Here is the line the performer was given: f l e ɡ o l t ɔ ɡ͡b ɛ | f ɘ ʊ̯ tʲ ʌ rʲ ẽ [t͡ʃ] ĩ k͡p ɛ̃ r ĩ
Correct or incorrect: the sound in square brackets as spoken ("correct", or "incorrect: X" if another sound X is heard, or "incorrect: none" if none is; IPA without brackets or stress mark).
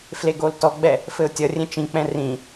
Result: correct